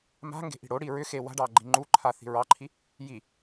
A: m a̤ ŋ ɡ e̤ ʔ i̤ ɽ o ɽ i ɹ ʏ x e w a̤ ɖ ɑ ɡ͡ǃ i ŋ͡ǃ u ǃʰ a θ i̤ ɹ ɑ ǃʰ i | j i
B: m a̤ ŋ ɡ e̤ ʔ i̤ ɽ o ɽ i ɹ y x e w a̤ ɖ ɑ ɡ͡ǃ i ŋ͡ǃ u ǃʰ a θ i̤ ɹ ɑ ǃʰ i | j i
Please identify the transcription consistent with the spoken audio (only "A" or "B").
A